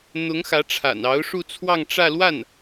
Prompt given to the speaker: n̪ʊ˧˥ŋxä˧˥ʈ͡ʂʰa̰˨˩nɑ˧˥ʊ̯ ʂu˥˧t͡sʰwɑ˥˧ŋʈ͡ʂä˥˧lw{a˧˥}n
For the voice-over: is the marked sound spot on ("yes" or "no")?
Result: no